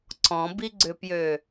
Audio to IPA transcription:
ǀ ɔ̃ b i ɡ͡ǀ ʏ p j ø

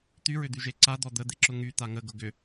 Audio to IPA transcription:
t̪ y ɹ ʏ d̪ y ʒ e ǀ a d̪ ɔ d̪ ə d̪ e ǁ ʊ ŋ y t̪ a ŋ ə ɡ ʊ ɡ ʏ

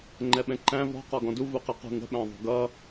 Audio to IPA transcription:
ŋ͡ǃ ɛ ɓ ɛ̃ ǃ æ̃ v ɔ̤ q ɔ ɡ ɔ̃ d u v u q ə q ṳ ŋ ə̤ ɓ æ̃ ðˤ ṳ ɡ ʌ

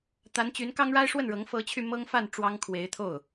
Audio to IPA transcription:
t̪ a˧˥ n t͡ɕ y˧˥ n k ɑ˥ ŋ ɻ a˥ ɪ̯ ʂ w ə˥˩ n ɻ ɤ˧˥ ŋ f ɤ˧˥ t͡ɕʰ y˧ m ɤ˥ ŋ f a˥˩ n ʈ͡ʂ w ɑ˥ ŋ kʰ w e˧˥ ɪ̯ t̪ʰ o˥˩ ʊ̯

